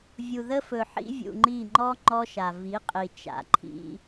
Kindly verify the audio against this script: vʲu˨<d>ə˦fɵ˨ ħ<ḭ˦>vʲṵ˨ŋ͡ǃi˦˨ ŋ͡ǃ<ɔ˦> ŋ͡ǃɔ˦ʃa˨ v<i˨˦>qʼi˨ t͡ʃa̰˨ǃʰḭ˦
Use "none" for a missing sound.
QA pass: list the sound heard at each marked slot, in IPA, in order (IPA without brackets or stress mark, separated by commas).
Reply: ð, ḭ˦, ɔ˦, i˨˦